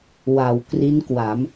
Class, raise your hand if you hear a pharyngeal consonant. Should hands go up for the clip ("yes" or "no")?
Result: no